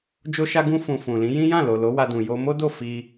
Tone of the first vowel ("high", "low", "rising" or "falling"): high